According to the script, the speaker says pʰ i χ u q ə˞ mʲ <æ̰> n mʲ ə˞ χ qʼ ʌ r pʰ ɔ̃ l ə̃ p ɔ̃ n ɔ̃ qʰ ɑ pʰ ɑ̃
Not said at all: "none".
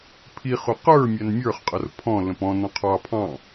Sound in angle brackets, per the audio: æ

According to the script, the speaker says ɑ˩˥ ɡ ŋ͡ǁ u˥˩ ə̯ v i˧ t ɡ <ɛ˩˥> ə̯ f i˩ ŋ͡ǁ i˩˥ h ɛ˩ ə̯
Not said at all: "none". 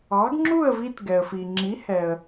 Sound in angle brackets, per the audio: ɛ˩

